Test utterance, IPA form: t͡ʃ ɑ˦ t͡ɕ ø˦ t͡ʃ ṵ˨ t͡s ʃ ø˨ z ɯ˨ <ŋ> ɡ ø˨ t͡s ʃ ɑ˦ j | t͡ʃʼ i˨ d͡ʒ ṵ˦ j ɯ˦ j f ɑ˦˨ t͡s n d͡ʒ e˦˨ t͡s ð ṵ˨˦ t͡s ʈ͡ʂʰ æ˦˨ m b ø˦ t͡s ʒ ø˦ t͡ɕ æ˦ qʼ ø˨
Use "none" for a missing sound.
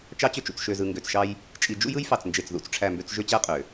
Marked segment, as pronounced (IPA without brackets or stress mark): ŋ